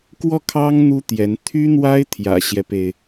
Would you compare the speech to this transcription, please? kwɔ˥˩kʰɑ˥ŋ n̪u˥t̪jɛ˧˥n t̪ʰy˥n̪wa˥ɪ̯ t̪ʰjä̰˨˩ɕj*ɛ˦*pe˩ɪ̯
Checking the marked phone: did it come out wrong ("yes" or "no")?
no